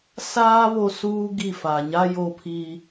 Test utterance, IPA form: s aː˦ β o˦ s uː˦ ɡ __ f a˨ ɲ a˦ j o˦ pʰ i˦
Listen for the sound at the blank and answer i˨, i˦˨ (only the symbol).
i˦˨